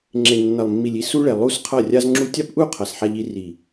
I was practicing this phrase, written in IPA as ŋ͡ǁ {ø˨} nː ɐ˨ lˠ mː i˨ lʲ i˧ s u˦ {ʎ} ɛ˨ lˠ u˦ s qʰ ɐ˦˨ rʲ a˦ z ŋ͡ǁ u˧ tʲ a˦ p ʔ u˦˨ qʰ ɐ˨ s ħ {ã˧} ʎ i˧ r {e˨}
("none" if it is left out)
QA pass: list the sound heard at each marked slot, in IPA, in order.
e˨, ɭ, a˧, i˨

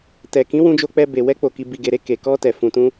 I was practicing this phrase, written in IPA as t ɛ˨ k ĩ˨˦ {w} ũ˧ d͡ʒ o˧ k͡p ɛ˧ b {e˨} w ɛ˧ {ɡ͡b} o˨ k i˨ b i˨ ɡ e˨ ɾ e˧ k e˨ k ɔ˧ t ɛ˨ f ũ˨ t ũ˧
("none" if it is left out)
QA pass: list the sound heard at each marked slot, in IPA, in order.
w, e˨, k͡p

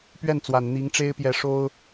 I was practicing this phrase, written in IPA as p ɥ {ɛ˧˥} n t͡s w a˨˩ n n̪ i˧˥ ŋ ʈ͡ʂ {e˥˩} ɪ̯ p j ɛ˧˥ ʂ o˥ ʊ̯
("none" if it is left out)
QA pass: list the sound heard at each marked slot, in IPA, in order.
ɛ˥˩, e˥

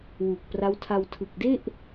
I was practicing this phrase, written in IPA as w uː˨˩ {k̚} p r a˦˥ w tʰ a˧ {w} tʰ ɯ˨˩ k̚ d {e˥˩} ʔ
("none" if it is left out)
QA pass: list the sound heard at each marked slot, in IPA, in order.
k̚, w, e˥˩

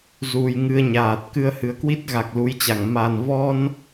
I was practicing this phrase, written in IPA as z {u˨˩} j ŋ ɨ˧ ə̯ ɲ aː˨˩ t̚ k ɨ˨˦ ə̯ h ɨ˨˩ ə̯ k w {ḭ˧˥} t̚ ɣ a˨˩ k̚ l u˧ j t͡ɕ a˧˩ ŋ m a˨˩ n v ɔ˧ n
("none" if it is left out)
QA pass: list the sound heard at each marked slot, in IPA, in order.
u˨˩, i˦˥

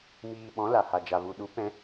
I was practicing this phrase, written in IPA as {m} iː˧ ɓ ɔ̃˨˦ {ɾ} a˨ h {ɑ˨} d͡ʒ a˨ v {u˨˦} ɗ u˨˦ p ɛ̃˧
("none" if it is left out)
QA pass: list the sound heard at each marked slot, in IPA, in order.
m, l, a˨, u˨

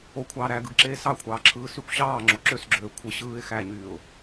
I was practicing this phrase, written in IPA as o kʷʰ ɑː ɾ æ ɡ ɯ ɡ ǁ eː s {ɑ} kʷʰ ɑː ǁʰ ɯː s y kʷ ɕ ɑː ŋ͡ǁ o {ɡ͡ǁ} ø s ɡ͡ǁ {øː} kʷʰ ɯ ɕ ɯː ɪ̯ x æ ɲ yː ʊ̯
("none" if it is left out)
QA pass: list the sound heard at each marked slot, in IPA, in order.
ɑ, ǁ, øː

